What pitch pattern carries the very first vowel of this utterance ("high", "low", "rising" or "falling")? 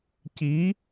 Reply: rising